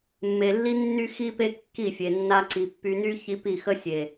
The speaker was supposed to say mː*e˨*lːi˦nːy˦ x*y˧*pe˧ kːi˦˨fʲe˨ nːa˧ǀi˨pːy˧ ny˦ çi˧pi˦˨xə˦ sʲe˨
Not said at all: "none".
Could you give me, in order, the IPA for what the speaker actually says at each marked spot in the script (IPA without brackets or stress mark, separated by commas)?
e˨, i˧